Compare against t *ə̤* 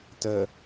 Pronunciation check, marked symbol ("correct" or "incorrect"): incorrect